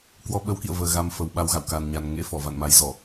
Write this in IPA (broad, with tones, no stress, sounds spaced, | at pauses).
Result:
k w ɔ˧ ɓ ə˨˦ w k ḭ˧˨ ə̯ v əː˨˩ ɣ a˧ m f ə˨˩ w ɓ a˧ w ɣ a̰˧˨ w k a˨˩ n ɲ a˨˩ n ŋ ḛ˧˥ f ɔ˧˩ v a̰˧˨ n m a˨˦ j z ɔ˧˩˨